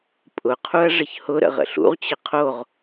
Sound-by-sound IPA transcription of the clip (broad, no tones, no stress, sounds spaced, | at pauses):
pʼ ʊ qʰ u ɐ̯ ʐ ə ç h ʊ ɾ ə̰ ʁ ə̰ ɬ ṵ ʁ t͡ɕ ə qʰ o ʁ